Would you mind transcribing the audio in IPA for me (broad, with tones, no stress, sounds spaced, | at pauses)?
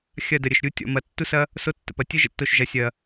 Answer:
xʲ ɐ˦˨ d ə˨ ɾʲ ə˨ ʃ ɾʲ u˧ tʲ ɔ̰˨ m ɐ˨ tː u˦ s ɐ˦ | s o˦ tː ə̰˨ p ɐ˨ tʲ ə˦ ʒ ə̰˦ tː o˧ ʃ ʒ ɐ˨ sʲ ɐ˨